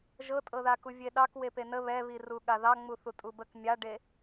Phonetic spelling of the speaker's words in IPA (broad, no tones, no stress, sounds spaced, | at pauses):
ʒ ɤ tʼ ɤ ð a k u vʲ e ɗ ɑ k w e p e n ə β ɛ β i r u ɠ a ð ɑ ŋ͡m u θ u tʼ u b ə k mʲ a ɖ e